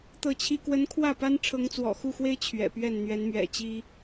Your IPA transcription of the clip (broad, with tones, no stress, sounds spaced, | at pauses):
t̪ ɤ˥˩ t͡ɕʰ i˥ k w ə˧˥ n kʰ w ä˥˩ p a˥ n ʈ͡ʂʰ ɤ˧˥ ŋ t͡s w ɔ̰˨˩ x u˥˩ x w e˥ ɪ̯ t͡ɕʰ ɥ ɛ̰˨˩ p ɥ ɛ˥˩ n n̪ ɥ ɛ˧˥ n m ɥ ɛ̰˨˩ t͡ɕ i˥